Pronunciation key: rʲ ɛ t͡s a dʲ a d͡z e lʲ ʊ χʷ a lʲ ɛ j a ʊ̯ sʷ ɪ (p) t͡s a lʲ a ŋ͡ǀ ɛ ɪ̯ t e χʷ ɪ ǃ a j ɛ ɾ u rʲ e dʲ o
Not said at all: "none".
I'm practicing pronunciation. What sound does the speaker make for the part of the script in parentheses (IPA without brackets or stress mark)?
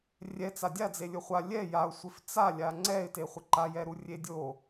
f